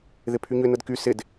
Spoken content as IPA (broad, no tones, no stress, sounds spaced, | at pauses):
ð ɪ pʰ y ɲ ʏ n ə d k y s ɪ d